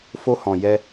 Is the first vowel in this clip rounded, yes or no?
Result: yes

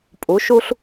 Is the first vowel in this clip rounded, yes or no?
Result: yes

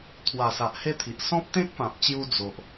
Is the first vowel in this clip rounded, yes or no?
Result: no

